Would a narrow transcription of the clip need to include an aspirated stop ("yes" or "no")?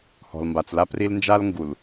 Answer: no